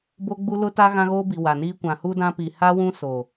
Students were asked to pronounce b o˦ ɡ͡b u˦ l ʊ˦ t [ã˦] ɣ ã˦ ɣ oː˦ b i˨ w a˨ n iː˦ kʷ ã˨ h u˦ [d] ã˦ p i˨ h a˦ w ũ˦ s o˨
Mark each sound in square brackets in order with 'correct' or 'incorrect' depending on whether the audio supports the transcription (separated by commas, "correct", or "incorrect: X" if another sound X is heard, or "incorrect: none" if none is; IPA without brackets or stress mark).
incorrect: a˦, correct